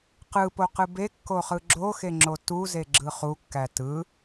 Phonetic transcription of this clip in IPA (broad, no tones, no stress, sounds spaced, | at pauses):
q ɯ p o q ɯ b e kː o χ ɯ ɡ͡ǁ o x e ŋ͡ǁ o t u z e ɡ͡ǁ ɯ χ u kː æ t ɯ